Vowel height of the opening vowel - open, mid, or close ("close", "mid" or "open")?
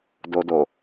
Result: mid